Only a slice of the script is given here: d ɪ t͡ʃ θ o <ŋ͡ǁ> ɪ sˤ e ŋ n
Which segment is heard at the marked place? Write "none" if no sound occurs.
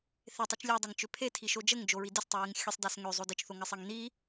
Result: ŋ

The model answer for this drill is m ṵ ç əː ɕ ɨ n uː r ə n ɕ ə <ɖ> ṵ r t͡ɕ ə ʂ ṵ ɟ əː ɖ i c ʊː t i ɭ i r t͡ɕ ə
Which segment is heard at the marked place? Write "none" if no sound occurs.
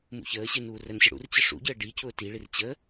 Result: ɽ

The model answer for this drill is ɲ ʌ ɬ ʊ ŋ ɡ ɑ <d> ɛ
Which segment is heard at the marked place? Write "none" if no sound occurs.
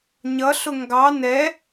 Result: n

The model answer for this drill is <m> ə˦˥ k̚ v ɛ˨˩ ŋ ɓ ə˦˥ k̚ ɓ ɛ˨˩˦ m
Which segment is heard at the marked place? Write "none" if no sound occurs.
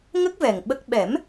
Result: ŋ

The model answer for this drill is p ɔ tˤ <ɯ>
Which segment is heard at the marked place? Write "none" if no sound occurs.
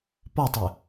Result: ɯ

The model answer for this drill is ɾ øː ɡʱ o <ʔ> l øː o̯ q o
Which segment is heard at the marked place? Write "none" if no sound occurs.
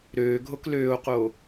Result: k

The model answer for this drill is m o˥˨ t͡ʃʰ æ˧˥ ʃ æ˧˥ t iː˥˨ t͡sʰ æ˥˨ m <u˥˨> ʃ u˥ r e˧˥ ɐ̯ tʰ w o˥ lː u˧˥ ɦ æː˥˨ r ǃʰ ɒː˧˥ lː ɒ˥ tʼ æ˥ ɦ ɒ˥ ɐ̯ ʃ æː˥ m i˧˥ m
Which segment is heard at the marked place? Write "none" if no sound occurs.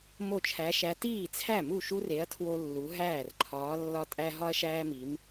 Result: u˥˨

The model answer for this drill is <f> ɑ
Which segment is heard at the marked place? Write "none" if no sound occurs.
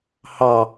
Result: h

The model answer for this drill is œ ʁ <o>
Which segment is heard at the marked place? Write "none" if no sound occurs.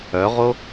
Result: o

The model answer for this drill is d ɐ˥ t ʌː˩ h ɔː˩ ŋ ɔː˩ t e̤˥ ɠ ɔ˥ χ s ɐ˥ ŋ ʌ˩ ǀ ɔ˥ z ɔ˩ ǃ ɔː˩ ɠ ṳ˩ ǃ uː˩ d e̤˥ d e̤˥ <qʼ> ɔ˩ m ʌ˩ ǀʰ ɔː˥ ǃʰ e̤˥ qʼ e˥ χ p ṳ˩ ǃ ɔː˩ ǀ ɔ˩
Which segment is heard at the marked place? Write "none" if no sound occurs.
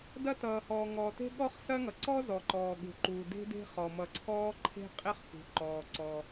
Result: χ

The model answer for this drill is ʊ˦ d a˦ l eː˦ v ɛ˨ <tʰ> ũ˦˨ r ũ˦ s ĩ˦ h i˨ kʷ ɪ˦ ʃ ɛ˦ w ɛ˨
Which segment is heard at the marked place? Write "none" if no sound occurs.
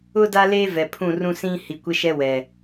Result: pʰ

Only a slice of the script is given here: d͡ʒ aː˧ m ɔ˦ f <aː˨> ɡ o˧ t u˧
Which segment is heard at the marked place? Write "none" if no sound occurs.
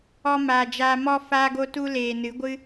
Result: aː˧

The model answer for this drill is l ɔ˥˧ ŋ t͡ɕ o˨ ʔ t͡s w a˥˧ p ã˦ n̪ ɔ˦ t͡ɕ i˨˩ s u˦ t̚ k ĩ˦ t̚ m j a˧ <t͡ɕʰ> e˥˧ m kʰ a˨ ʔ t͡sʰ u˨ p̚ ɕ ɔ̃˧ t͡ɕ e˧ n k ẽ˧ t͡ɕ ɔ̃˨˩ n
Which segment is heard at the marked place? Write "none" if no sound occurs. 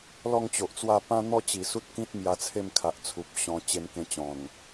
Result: t͡sʰ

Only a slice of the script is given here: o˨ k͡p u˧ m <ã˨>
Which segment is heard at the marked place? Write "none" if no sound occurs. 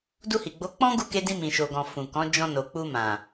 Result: ã˨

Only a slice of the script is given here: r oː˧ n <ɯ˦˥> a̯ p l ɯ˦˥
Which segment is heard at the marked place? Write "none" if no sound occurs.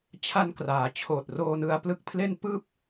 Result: ɯ˧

